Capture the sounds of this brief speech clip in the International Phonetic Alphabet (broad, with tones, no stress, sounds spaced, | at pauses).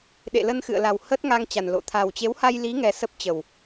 ɗ ḛ˧˨ l ə˧ n x ɨ̰˧˨ ə̯ l a˨˩ w h ə˦˥ t̚ ŋ a˧ ŋ t͡ɕ a˨˩ n l o̰˧˨ t̪ʰ a˨˩ w t͡ɕ e˨˦ w h a˧ j l i˨˦ ŋ ɛ˧ s ə˦˥ p̚ t͡ɕ ə˨˩ w